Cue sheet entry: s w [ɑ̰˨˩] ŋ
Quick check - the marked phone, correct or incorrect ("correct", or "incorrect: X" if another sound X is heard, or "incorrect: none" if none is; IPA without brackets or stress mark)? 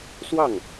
incorrect: ɑ˥˩